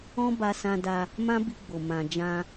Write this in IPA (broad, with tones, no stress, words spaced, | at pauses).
ɔ̃˦ba˧sã˧ da˧ | mã˦bi˧ɡ͡bo˨ mã˨ d͡ʒã˧